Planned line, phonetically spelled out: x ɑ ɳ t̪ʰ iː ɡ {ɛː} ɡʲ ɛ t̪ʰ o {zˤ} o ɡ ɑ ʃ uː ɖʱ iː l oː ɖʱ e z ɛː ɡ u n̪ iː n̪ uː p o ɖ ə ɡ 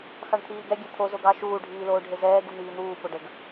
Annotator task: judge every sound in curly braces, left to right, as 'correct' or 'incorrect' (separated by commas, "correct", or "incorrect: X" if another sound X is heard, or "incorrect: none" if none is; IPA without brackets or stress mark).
incorrect: ɛ, incorrect: z